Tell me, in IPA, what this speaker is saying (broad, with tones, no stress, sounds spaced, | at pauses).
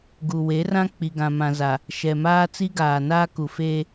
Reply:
ɡ u˨ w e˨˦ r ã˦ k͡p i˨ ɡ ã˨ m ã˨ z a˨ | ʃ ɛ˨ m aː˦ t͡s i˦ ɡ aː˨ n aː˦ k u˨ f eː˦